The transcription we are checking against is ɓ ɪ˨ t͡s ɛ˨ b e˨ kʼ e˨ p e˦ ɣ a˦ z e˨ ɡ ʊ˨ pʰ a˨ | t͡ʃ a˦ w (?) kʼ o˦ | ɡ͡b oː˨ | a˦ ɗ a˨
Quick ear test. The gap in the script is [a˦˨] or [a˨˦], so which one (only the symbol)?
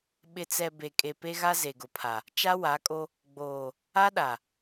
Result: a˨˦